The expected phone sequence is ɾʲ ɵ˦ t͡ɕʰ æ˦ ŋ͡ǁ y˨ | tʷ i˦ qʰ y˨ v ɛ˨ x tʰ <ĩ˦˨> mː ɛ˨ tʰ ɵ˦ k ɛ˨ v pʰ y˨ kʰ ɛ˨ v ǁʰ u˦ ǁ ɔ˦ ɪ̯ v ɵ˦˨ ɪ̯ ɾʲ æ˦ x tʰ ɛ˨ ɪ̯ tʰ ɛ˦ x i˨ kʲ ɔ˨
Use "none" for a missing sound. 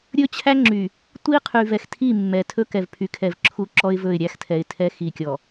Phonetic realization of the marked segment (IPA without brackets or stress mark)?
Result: i˦˨